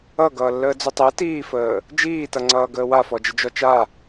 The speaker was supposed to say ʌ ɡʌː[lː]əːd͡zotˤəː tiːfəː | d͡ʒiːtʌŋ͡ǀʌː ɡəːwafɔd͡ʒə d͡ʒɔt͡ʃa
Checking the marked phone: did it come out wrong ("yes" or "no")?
no